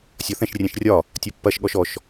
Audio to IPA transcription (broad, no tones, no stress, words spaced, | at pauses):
sʲɒθɛ̃ʃ rʲɛ̃ʃrʲɒ | tʲɒpːɐʃ ɠɔʃɔʃ